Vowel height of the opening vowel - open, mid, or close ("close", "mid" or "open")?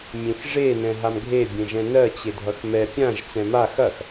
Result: mid